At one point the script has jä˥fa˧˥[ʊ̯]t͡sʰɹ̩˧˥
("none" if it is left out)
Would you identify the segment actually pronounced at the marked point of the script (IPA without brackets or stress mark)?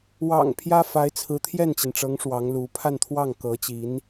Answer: ɪ̯